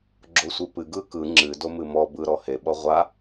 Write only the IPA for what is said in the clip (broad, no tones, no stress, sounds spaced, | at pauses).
ɡ͡ǁ o sʷ ɨ p ɨ ɡ ɯ k ɯ ŋ͡ǁ ɨ d o m ɨ m ɔ b ɯ ɾ ɔ h e ɓ ɔ ʁʷ a